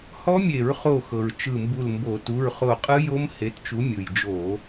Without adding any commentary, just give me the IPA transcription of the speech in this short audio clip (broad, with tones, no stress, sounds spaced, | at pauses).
h ɔ˦˥ mʲ e˧˩˧ ɹ χ o˧˩ x ɤ˩ ɹ t͡ʃ ɯ˧˩ m b u˧˩ l m b o˧˩˧ t u˩˧˩ ɹ χ o˧˩ qʼ ɯ˦˥ j o˦˥ m h e˨˥ t t͡ʃ u˨˥ mʲ ɯ˩ j d͡ʒ o˧˩˧